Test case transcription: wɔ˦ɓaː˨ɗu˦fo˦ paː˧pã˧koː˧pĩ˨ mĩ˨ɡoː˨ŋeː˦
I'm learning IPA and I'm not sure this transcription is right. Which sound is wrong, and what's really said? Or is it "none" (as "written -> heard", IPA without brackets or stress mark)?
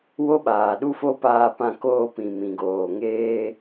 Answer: ɔ˦ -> o˦